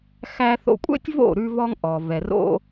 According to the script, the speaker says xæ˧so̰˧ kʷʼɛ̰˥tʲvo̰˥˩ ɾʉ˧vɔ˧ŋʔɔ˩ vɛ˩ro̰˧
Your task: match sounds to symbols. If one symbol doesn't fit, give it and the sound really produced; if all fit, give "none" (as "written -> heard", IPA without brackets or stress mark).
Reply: s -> θ